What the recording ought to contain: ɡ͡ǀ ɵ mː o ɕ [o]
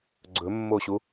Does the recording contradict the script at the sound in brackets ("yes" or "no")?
yes